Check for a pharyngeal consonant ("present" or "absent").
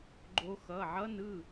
present